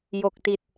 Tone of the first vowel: low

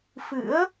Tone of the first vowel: rising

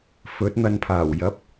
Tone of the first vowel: rising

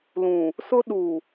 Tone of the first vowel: low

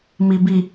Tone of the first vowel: low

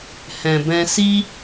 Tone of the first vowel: low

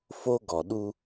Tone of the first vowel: high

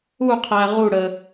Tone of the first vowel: falling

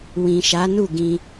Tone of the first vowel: low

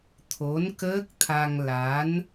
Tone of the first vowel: rising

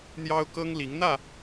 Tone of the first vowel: high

